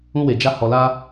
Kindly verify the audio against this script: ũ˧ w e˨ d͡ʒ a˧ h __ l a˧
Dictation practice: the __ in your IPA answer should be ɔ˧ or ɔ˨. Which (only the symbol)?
ɔ˨